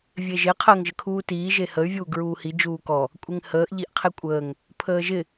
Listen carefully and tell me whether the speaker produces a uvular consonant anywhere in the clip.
yes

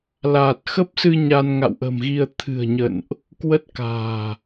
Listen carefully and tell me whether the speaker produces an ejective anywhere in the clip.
no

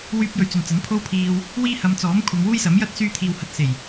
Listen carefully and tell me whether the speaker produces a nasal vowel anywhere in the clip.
no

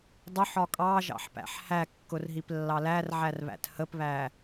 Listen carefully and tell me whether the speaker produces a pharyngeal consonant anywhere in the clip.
yes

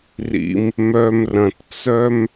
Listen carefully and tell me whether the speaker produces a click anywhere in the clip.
no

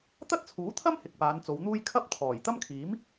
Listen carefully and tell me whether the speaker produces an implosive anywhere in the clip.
no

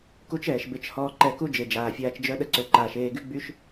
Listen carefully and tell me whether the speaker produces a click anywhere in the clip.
yes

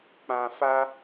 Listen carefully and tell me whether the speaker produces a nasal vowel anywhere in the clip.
yes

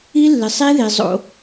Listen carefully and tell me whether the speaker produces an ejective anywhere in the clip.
no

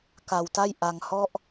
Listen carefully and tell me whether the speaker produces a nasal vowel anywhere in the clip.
no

